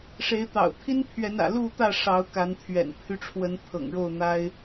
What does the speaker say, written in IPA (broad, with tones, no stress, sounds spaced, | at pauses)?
ʂ e˨˦ ɪ̯ t̪ ɑ̰˨˩ ʊ̯ t̪ʰ i˦ n pʰ ɥ ɛ˨˦ n ä̰˨˩ l u˥˨ t̪ ä˥˨ ʂ ɑ˨˦ ʊ̯ k a˨˦ n t̪ʰ ɥ ɛ̰˨˩ n pʰ y˦ ʈ͡ʂʰ w ə˨˦ n t̪ʰ ɤ̰˨˩ ŋ ɻ o˥˨ ʊ̯ n̪ a˦ ɪ̯